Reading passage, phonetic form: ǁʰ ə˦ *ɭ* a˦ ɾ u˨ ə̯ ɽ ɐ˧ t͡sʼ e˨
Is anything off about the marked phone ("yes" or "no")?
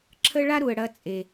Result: no